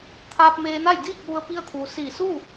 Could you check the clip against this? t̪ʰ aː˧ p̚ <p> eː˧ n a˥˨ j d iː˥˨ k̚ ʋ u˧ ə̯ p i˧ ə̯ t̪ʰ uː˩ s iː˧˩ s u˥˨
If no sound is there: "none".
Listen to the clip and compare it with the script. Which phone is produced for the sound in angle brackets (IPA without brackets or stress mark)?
m